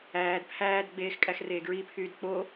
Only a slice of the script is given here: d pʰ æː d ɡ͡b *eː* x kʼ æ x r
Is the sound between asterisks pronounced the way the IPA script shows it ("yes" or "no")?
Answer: yes